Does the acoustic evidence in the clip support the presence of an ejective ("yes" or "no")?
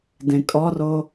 yes